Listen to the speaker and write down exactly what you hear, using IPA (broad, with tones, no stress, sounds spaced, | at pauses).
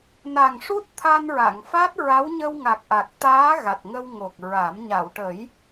n a˨˩ ŋ ʂ u˦˥ t̚ t̪ʰ a˧ n ɹ a˨˩˨ ŋ f a˦˥ t̚ ɹ a˧˥ w ɲ ə˧ w ŋ a˨˩ k̚ ʔ a˨˩ k̚ t̪ aː˧˥ ɣ a˨˩ t̚ ŋ ə˧ w ŋ o˨˩ k̚ ɹ a˨˩˦ m ɲ a˨˩˨ w ʈ ə˨˩˦ j